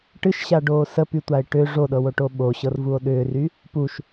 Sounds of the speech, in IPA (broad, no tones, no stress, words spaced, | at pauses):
ʈɨʃɕaɖoː səpytʷae̯ ʈʏ ʐoɗɤwoʈo ɓoɕɤrvuo̯ ɗʏːry | puʃ